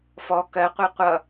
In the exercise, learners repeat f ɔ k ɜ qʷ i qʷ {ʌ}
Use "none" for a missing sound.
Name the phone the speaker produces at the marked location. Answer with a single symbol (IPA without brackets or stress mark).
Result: ʌ